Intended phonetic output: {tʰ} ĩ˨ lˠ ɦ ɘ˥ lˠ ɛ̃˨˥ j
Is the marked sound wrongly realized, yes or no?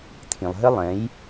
no